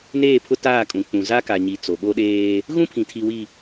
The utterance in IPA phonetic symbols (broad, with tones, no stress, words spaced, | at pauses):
neː˦˨pʰʊ˦ taː˦˨kʼũ˨ k͡pũ˨za˦ka˨ɲi˨ t͡so˨ɓo˦ɗeː˦ | ɣũ˦pʰĩ˨tʰi˨wi˨